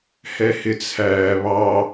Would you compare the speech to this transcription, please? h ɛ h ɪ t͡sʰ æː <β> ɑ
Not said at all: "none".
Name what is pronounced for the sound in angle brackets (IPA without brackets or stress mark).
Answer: β